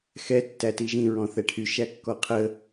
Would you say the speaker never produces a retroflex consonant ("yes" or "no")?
no